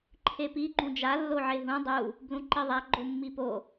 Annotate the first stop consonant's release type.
click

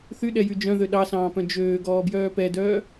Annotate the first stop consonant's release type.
implosive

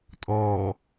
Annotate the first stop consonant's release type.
ejective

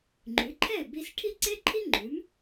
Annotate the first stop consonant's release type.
click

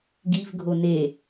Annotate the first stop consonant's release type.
plain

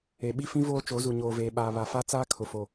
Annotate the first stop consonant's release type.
implosive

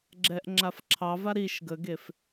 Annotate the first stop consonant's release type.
click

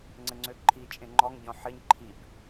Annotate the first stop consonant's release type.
click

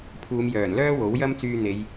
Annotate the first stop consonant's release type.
aspirated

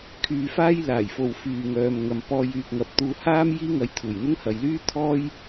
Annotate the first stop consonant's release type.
aspirated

